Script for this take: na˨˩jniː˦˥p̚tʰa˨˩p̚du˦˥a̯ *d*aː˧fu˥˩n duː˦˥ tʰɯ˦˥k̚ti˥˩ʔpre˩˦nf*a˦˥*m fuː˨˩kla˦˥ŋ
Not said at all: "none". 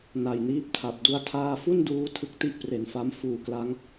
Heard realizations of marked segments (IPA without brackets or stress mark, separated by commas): tʰ, a˦˥